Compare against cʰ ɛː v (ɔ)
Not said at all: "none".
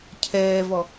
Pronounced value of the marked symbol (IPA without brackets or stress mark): ɔ